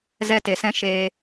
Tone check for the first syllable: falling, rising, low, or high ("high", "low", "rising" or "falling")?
high